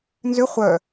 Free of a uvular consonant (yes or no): no